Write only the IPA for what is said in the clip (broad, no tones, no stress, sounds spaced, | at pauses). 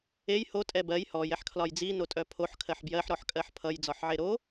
e j h o tʼ ɛ b ɜ j h ɔ j ɛ ħ kʰ l ɒ j d͡z i n o tʼ œ pʰ o ħ kʰ ɜ ħ b j ɜ ħ ɾ ɔ ħ kʼ ɜ ħ pʰ ʌ j d͡z ɒ ħ ʕ e ɾ o